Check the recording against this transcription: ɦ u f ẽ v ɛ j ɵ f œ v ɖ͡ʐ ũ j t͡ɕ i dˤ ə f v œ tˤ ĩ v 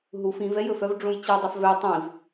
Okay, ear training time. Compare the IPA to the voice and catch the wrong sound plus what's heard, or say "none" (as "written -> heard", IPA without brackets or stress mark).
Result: ẽ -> ĩ